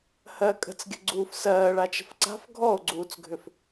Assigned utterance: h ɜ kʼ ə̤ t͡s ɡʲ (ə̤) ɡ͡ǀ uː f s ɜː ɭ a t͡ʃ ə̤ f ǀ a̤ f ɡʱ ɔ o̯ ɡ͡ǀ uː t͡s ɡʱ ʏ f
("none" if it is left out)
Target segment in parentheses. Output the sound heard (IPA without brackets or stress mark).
ə̤